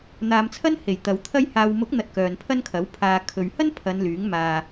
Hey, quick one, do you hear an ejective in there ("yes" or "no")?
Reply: no